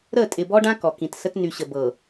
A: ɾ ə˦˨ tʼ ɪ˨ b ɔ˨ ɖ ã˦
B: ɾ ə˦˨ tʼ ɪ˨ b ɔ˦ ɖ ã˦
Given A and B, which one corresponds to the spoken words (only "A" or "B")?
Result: B